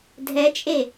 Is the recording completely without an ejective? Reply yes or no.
no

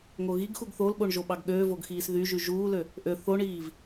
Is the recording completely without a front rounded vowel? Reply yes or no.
no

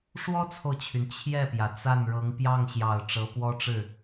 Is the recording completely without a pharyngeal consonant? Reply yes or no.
yes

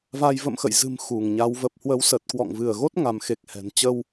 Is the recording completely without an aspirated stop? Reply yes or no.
yes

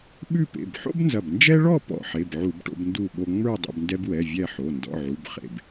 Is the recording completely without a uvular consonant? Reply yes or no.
no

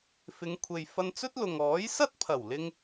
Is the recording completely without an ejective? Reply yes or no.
yes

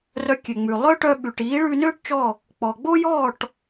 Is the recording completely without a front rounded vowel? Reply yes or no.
no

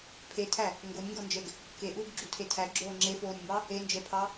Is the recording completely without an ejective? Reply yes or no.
yes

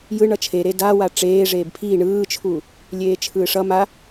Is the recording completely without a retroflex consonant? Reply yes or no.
no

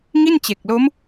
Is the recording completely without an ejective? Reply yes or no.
yes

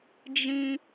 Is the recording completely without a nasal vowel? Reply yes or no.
no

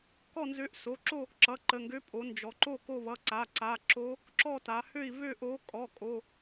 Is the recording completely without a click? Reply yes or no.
no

